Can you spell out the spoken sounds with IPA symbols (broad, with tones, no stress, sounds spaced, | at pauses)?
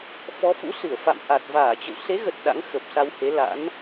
f ɔ˨˦ f ṵ˧˥ s ɨ˧˩ ə̯ f a̰˧˨ m ʔ a˨˩ t̚ v aː˧˩ t͡ɕ ə̰˧˨ w s e˨˦ ɣ ə˨˩ t̚ ɗ a̰˧˥ ŋ x ə˨˩ p̚ s a˧ w h e˨˦ l a̰˧˥ n